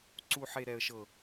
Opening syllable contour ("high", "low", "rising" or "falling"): high